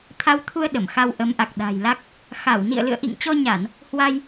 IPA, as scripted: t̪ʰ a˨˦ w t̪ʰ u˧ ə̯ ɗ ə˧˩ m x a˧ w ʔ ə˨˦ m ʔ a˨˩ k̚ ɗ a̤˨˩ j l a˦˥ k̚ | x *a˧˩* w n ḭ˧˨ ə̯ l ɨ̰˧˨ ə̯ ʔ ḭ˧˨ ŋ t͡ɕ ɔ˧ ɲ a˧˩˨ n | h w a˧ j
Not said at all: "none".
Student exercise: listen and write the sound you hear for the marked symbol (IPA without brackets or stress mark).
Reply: a˧˩